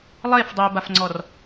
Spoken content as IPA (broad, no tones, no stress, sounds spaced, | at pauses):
lˠ e f dˤ i b a f ŋ͡ǀ ɔ r